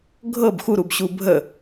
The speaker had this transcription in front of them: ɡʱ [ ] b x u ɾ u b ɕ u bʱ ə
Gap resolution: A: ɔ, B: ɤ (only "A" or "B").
B